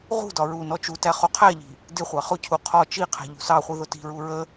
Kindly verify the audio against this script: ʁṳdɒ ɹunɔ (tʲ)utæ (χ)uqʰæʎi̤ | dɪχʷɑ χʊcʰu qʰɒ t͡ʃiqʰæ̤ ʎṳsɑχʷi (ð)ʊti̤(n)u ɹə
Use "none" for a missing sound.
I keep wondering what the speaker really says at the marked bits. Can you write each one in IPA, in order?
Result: t͡ʃ, χ, ð, ɹ

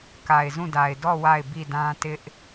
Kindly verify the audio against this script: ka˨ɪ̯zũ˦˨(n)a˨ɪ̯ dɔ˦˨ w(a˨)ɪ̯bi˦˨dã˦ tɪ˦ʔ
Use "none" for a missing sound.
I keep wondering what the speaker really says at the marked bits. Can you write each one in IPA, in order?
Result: d, a˦˨

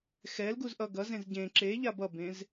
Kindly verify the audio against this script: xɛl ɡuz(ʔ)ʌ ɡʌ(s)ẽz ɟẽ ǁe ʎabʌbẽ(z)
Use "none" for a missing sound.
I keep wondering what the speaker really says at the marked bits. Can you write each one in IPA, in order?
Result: ʔ, z, z

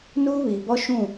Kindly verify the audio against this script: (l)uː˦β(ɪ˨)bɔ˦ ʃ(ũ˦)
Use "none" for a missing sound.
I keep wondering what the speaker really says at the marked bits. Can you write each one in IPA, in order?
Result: n, i˨, ũ˦˨

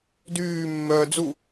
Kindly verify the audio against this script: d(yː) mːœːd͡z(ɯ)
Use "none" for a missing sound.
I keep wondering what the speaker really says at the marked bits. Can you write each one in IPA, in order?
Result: yː, u

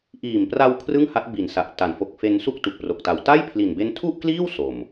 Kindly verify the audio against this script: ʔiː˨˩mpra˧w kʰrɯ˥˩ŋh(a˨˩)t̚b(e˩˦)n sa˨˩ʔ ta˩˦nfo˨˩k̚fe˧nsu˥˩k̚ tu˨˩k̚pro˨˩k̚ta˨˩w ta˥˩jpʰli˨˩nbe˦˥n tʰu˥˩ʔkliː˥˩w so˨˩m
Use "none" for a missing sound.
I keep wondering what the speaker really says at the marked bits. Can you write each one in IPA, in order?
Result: a˦˥, i˩˦

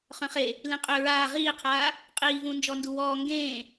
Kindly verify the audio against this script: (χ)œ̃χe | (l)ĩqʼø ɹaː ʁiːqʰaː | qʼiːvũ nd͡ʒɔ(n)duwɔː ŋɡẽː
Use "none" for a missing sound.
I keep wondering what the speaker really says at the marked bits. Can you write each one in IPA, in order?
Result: χ, l, n

